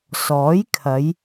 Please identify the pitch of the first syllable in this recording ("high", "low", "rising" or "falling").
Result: rising